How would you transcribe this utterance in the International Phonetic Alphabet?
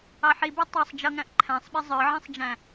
ɑ ħ i b ɛ tˤ ɑ sˤ d͡ʒ ʌ ŋ æ̃ ʔ ǃʰ æ̃ sˤ ɓ ɪ zˤ ə˞ ʕ ĩ sˤ d͡ʒ æ̃

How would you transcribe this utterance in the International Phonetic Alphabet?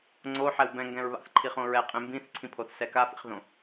ŋ͡ǀ o ħ ɛ w b ɛ̃ ŋ ɡ ɛ̃ ɹ β a̰ θ ǃʰ i χ õ ɹ ɛ qʼ ẽ m b ĩ θ ǀʰ ĩ pʰ o θ s ɛ k a f ḭ χ ð õ

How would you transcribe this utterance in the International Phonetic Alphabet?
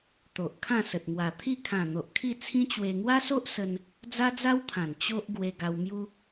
t̪ o˨ ʔ kʰ ã˥˧ s ə˨ t̚ ŋ w a˨˩ t̪ʰ i˥˧ kʰ ã˨˩ n̪ o˨ ʔ kʰ i˥˧ t͡sʰ ĩ˦ t͡ɕ w e˧ ŋ w a˦ s o˦ ʔ s ə˦ n | d͡z a˦ d͡z a˦ w t̪ʰ ã˨˩ n t͡ɕ o˦ ʔ ɡ w e˧ ɡ a˧ w m j u˦

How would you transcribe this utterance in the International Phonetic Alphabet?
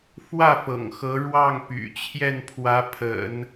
f w ä˥˩ f ɤ̰˨˩ ŋ x ɤ˧˥ ɻ w ɑ˥˩ ŋ p y̰˨˩ t͡ɕʰ j ɛ˥˩ n pʰ w ä˧˥ pʰ ə̰˨˩˦ n

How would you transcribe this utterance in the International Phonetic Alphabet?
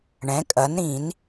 ɳ ɛ̃˩˥ kʼ ɐ˩˥ n ɾ ĩ˨˩˦ n

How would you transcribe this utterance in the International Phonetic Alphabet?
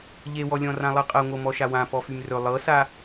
ʎ e w ɔ lʲ ɔ̃ r ã lˠ ɤ qʼ ɤ ŋʷ ɤ m ɔ ʃ a w ã p ɔ f y m r ɵ lˠ ɤ s a

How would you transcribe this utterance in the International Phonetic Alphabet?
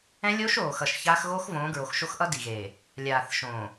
ɛ̃˦ lʲ oː˦ ʃ oː˨ x ʌ˨ ʃ ç aː˦ x ɣ oː˦ x v õː˨˦ ɡ ɹ o˨ x ʃ o˦ x ʔ ʌ˦ d i˨ ɣ eː˨ | lʲ aː˨ θ ʃ õ˨

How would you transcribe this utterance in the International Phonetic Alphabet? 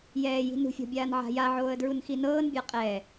j ɛː j i̤ n ṳ fʲ ɔ̤ bʲ aː n ʕ a̤ j a ʕ oː ə̯ d ɹ u n x i n ɤː n bʲ a qʼ ɛ

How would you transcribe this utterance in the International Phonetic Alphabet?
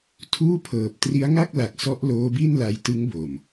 tʰ uː˥˩ pʰ ɤː˨˩ p̚ t r i˦˥ a̯ ŋ a˥˩ k̚ l a˨˩ k̚ s ɔ˦˥ ʔ l oː˦˥ b i˥˩ n l a˧ j t ɯ˦˥ ŋ b o˨˩ m

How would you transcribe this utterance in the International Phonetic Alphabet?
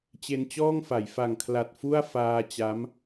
t͡ɕ e˧ n t͡ɕ ɔː˥˩ ŋ f a˩˦ j f a˨˩ ŋ kʰ l a˨˩ t̚ f u˥˩ a̯ f aː˧ t͡ɕ a˦˥ m

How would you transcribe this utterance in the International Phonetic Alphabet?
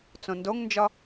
t͡s õ n d o ŋ n d͡ʒ ɒ

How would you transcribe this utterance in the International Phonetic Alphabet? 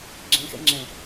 ɡ͡ǁ ẽ x ḛ ŋ͡ǁ ẽ

